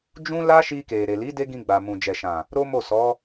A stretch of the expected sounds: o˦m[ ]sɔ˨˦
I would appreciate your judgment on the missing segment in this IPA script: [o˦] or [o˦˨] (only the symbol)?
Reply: o˦˨